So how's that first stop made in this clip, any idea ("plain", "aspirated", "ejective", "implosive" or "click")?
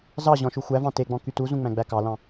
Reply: plain